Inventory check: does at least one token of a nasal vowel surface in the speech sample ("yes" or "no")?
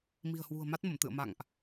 no